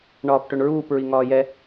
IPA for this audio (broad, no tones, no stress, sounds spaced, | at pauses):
ɳ ɒː p ʈ ɵ ɳ ɹ uː p ɹ i ŋ ɒː j ɛ